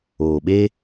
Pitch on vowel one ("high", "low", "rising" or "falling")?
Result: low